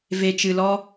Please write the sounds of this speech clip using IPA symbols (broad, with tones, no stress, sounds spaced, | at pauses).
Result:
v e˧ t͡ʃ ɨ˧ l ɔ˦